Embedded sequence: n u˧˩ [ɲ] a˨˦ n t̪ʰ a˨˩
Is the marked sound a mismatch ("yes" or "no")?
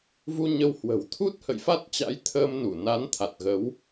yes